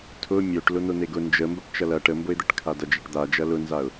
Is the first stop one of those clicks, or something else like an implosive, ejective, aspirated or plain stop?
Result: aspirated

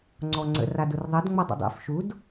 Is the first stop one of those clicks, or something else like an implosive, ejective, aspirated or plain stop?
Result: click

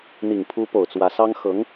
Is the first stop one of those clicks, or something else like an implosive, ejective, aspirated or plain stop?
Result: aspirated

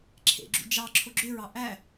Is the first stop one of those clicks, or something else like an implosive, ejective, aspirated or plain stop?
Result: click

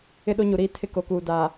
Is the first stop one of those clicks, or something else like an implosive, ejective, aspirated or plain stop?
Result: implosive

